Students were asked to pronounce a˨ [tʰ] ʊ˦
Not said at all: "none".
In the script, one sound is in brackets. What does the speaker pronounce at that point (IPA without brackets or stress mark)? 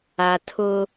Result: tʰ